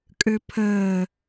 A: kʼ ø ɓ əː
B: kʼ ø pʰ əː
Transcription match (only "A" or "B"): B